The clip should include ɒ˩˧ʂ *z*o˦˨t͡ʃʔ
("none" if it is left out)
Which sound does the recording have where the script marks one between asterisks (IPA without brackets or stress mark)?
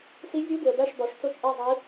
t͡s